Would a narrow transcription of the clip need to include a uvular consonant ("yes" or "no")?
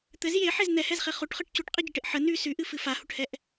yes